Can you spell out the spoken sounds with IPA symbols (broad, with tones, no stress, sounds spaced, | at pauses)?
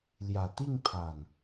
l j a˨˩ t̪ i˥˧ ŋ pʰ a˨˩ n